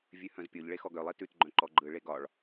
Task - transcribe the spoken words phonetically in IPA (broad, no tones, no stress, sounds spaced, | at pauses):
vʲ ʉ h œ̃ z pʲ o ʎ ɭ e x ɔ ɡ œ lˠ i t ʉ t ɡ͡ǃ œ̃ ǃ ɔ ɡ͡ǃ ɯ ɭ e ɡ ɒ ɭ